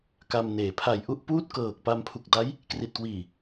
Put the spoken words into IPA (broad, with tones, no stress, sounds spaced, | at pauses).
k a˧ m n eː˩˦ pʰ a˨˩ j ʔ u˥˩ ʔ p uː˥˩ t̚ k ɤː˨˩ k̚ p a˧ m pʰ u˨˩ k̚ d a˦˥ j | k r i˨˩ t̚ k w iː˨˩